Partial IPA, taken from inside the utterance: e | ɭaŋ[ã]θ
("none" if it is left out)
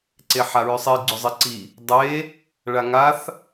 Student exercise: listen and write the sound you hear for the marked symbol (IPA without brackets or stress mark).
a